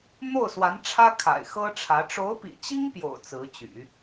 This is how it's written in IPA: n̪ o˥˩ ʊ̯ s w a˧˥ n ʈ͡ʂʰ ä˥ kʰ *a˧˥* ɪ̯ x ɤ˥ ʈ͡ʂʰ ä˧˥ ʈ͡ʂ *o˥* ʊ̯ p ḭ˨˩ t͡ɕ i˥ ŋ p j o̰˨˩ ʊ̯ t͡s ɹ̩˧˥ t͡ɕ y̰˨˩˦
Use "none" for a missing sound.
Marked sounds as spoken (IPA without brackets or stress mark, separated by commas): a̰˨˩, o˧˥